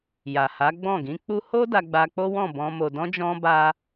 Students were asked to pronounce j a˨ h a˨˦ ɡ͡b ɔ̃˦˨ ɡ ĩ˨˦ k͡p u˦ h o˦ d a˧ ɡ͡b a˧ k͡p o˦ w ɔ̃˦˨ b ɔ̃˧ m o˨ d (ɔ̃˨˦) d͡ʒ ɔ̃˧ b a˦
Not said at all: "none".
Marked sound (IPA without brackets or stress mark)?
ɔ̃˧